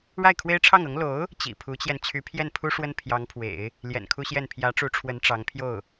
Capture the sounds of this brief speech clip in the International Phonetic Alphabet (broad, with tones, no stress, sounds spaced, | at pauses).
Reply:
ɻ a˥˩ ɪ̯ kʰ w e˥ ɪ̯ ʈ͡ʂʰ ɑ˥˩ ŋ ɤ˧˥ ŋ l o˧˥ ʊ̯ | t͡ɕ ḭ˨˩ pʰ u˧˥ t͡ɕ j ɛ˧ n t͡ɕʰ y˧˥ pʰ j ɛ˥˩ n pʰ u˥ ʂ w ə˥ n pʰ j ɑ˧˥ ŋ pʰ w ḛ˨˩˦ ɪ̯ | l j ɛ̰˨˩ n kʰ u˥ ɕ j ɛ˥˩ n pʰ j ä˧˥ ʈ͡ʂ u˧˥ ʈ͡ʂʰ w ə˧˥ n ʈ͡ʂ ɑ˧˥ ŋ pʰ j o˥˩ ʊ̯